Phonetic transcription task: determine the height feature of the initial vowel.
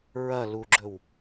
low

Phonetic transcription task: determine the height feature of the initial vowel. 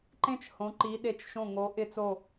mid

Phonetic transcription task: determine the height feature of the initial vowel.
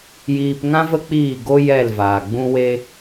high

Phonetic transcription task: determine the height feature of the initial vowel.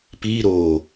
high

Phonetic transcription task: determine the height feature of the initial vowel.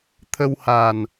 mid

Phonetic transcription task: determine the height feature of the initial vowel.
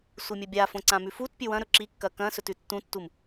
high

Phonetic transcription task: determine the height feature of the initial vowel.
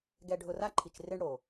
mid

